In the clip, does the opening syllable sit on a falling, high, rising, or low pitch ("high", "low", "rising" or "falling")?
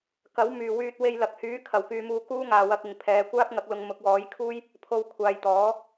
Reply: rising